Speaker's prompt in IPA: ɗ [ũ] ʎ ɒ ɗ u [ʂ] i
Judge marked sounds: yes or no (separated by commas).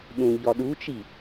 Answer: yes, no